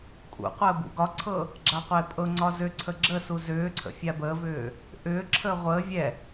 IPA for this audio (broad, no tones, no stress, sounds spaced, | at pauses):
kʼ ṵ qʷ əː b ṵ ɡ ɒ ǀʰ ɤ | ɡ͡ǁ a qʷ e pʼ ɤ ŋ͡ǀ ɒ z ʏ ǀʰ ə ɡ͡ǁ ə s u z ʏː ǀʰ ə̰ fʲ a b əː v ʏː | ʔ ʏː ǁʰ əː ʁʷ əː vʲ ɛ